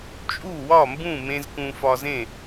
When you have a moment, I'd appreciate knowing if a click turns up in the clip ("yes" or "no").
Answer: no